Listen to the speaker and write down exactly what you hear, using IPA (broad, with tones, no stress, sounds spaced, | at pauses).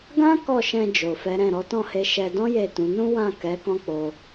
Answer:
ɡ ã˦ k ɔ˦˨ ʃ ɛ̃˧ d͡ʒ o˨ f ɛ˨˦ ɾ ɛ̃˦˨ ɾ ɔ˨˦ t ɔ̃˦˨ h e˧ ʃ ɛ˧ d ɔ̃˦ j e˦˨ t ũ˨˦ n ũ˦ w ã˦˨ k ɛ˨˦ k ɔ̃˦ k͡p o˧